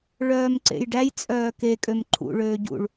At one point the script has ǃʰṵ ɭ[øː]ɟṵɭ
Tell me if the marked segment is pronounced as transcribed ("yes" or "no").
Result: yes